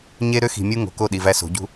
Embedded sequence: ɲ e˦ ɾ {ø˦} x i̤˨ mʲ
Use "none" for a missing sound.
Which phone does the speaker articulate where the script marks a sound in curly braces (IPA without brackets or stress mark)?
ø˦